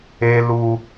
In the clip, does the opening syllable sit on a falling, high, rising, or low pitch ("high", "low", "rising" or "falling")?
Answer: high